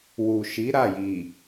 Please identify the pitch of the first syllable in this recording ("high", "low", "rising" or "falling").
low